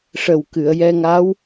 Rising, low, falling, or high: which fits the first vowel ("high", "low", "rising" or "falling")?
low